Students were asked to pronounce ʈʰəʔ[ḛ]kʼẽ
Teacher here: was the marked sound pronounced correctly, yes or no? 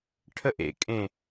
yes